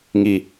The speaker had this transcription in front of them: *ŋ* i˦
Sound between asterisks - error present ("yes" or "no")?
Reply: no